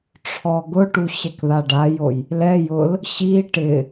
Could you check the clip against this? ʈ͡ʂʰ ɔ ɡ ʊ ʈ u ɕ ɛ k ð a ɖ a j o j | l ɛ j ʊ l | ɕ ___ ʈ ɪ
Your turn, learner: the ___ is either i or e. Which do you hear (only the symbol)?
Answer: i